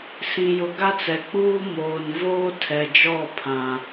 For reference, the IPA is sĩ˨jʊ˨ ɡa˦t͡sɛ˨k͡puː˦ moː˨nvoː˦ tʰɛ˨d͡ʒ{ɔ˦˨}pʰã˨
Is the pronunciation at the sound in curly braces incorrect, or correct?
correct